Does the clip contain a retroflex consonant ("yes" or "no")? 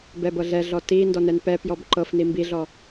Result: no